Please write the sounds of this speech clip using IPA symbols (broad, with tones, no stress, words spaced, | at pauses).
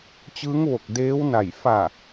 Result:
t͡ɕɯː˧˥ŋʋo˧˩k̚ deː˧˥wna˧˩j fa˧˩